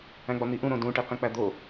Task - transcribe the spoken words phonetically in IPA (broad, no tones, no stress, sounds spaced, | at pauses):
æ̃ ɡ͡b ɒ n̪ i ʔ ũ ɾ õ d ũ ʈ e q ĩ k͡p æ d̪ o